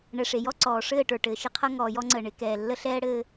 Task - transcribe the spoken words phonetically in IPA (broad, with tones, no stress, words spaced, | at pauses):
ɳɛ˨ʂe˨jɔ˦ ǀɔː˨ʂɘː˦˨ʈə˞˨ ʈɘː˨ʃɪ˦ qʰʌ˦ ŋɔː˨jɔ˦ŋ͡ǀəː˨ ɳɪ˨˦ kɛː˨lːə˦ɬɛː˦ɽɘː˦